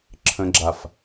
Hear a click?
yes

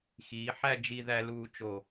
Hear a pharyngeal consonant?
yes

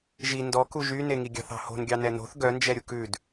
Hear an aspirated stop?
no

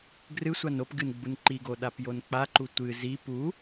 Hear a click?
yes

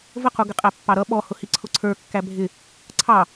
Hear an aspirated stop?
yes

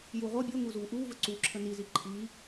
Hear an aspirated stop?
yes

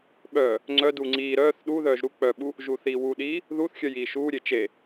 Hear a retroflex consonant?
no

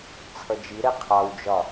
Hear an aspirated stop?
yes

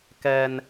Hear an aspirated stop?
no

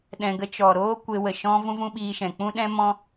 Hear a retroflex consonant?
no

